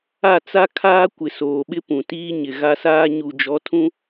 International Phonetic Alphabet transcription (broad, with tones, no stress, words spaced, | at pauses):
a˦˨t͡sa˦ kʰaː˦kʷɪ˨soː˨ ɓɪ˦pũ˨ tiː˦ɲɪ˨ɣa˦saː˦ ɲu˨d͡ʒɔ˨˦tʰũ˦